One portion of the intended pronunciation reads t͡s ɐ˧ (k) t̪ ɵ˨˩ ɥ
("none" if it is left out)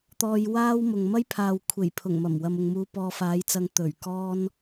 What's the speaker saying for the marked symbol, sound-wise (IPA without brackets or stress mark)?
ŋ